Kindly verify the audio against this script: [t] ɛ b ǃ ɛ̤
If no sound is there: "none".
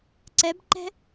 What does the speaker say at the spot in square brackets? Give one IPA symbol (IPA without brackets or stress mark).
ǀ